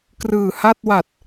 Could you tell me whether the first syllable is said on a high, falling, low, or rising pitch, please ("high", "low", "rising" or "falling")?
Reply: low